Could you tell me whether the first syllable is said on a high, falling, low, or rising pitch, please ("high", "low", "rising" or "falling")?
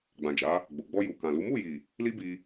low